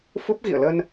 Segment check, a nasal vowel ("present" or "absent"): absent